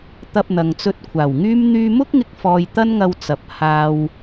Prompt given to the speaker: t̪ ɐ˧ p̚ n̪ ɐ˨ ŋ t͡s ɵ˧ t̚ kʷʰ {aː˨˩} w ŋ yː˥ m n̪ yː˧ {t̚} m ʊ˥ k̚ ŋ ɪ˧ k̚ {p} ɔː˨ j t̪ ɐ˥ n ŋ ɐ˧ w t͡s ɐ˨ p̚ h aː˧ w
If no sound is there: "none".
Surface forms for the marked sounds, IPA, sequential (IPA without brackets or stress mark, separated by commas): aː˨˩, none, f